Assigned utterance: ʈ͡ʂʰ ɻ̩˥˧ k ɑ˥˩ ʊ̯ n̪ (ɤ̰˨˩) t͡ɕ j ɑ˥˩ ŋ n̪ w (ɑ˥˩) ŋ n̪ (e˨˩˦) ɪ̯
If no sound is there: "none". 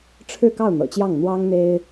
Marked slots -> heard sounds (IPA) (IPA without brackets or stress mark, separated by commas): ɤ̰˨˩, ɑ˥, e˥